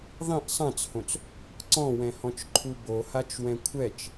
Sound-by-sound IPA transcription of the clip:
ðˤĩʔ sˤãt͡shõt͡s | ǀɔ̃wɛ̃hɔ̃t͡ʃ ǃʰubohat͡ʃwɛ̃ kʷʰɛt͡ʃ

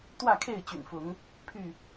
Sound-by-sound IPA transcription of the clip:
t̪wä˥˨kʰe˥˨ɪ̯t͡ɕy̰˨˩nfʊ˨˦ŋ | pʰy˥˨

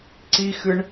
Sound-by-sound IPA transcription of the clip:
ǀixɨɳ

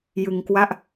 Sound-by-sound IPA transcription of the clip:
jɯ˧ŋkwa˥˩ʔ

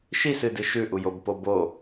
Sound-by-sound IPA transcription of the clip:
ʃisɨdɨ ʃʉʔujobpo bo

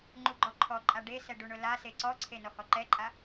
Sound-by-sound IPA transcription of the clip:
ŋ͡ǃuɡ͡ǃɔǃʰɔǃʼa ɖesɛ ɖuɳʊlase ǀɔǀʰe nɔhɔǃɛǃʼa

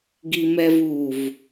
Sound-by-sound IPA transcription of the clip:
ɡimɛvuv

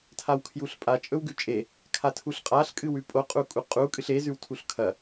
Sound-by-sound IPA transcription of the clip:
tʰawkʰjuɬpʼa t͡ʃʼɵwɡʉt͡ʃʼe | kʰatʰuɬqʼaɬ kʼɨwʉpʼo qʼukʼuqʼu kʼɨɬe zʉwtʰuɬkʰɐ

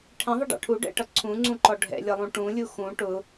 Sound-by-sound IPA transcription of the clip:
ʈʰɛ̃ðˤəɖɑ̰ ʈʰuɖɛ̰ʈʌ ǀʰũŋ͡ǀũǃɔ ɖʱɛ̰lʲʌlˠũ ʈũlʲu xũ ʈʊ

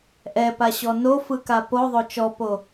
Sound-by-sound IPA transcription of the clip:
ʔɛpaɕɔ nofɯka poðˤo t͡ʃɔpo

